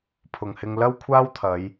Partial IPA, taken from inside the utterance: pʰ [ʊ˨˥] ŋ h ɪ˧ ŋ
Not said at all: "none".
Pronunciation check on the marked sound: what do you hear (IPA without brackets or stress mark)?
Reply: ʊ˨